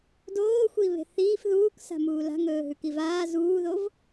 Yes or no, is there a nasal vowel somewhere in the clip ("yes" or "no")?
no